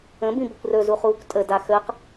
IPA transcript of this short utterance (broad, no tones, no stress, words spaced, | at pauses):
ə̃bĩ bɘkʷrɵzu χuːkʷtʼəda xəq